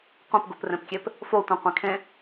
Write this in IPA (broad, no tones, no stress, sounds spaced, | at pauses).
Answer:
qʷ ĩ p ɡ u p r ẽ p kʲ e p | f o tʷ ĩ qʷ ẽ kʰ ẽ